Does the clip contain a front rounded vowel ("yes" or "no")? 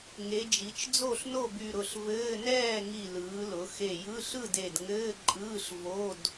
yes